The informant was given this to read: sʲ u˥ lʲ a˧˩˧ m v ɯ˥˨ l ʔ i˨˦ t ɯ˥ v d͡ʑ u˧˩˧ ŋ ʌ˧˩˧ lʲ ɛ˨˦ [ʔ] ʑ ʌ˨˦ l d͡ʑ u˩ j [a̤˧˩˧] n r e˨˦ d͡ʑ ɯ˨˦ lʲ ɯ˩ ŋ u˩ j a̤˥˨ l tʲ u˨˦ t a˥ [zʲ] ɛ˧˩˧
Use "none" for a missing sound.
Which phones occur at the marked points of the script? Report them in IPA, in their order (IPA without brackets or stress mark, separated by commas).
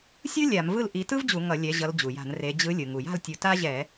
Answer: none, a̤˧˩˧, ʑ